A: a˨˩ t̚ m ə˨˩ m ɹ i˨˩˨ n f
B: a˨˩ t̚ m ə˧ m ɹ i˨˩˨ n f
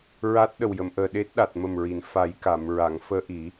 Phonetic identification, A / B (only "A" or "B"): A